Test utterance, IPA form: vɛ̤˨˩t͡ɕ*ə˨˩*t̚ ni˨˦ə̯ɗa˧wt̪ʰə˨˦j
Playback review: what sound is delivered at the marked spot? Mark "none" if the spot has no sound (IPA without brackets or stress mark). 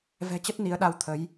ə˦˥